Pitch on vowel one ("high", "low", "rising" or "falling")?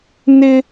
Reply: high